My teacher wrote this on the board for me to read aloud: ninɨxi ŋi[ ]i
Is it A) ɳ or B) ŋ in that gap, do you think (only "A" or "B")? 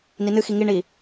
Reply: A